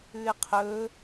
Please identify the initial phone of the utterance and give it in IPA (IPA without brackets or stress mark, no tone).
ʉ